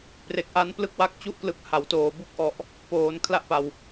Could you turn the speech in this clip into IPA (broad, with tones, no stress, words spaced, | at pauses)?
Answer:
pre˨˩k̚ʔa˦˥n plɯ˥˩k̚wa˥˩k̚t͡ɕu˥˩ʔklɯ˦˥k̚ ha˩˦wtoː˨˩ bu˥˩k̚ʔɔ˨˩ʔ | poː˩˦n kʰla˦˥ʔpa˨˩w